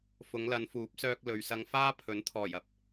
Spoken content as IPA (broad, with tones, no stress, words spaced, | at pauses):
fʊ˨˧ŋlɐ˨˧nfuː˨˥p̚sœː˧k̚ lɵ˨ɥsɐ˧ŋ faː˥pʰɵ˨˥nt̪ʰɔː˨˩jɐ˧p̚